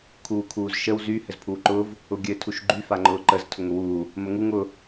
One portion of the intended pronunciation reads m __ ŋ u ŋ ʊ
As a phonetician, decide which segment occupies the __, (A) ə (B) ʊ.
A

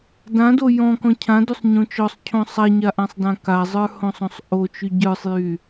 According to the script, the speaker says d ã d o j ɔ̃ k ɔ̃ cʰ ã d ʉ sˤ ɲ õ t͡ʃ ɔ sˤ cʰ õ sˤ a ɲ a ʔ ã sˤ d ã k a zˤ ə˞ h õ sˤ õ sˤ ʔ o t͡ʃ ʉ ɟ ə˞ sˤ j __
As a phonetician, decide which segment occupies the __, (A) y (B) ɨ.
A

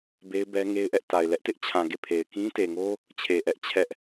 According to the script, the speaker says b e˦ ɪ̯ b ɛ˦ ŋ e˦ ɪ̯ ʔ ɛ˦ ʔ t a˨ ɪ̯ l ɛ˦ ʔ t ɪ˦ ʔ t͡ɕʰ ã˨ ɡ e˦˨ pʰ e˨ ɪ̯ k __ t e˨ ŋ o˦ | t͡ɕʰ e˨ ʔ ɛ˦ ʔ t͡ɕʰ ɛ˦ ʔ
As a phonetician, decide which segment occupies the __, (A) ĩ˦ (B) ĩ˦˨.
A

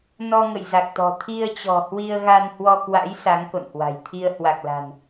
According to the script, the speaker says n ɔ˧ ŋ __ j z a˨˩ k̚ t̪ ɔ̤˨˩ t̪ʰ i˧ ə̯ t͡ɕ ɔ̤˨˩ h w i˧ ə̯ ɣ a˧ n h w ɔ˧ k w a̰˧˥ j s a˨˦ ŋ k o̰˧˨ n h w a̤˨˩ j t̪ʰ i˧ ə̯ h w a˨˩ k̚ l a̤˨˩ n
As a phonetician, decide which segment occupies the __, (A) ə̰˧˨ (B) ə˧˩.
A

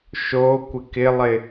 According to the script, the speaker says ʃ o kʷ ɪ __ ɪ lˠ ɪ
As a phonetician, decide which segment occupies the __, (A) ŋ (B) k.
B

